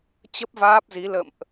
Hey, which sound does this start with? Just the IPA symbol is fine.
t͡ɕ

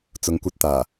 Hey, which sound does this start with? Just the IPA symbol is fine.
t͡s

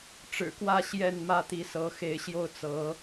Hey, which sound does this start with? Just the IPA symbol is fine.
ʈ͡ʂ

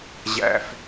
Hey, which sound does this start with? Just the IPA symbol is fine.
ʑ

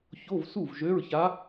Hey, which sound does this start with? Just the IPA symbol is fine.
ç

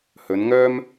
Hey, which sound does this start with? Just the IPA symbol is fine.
h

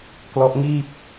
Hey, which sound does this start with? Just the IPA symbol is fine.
k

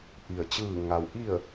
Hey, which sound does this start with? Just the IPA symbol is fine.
ʔ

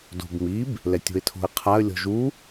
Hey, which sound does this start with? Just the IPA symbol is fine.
d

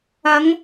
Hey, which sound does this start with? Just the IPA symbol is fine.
ɐ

